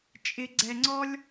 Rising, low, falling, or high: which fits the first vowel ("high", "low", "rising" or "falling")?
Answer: low